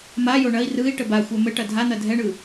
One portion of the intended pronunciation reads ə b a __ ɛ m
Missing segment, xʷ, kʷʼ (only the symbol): xʷ